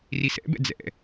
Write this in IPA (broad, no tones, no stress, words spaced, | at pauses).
risɛ̰bɛ̰ d͡zɛ̰